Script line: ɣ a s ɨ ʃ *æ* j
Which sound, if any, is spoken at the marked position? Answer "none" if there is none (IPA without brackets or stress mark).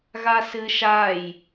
a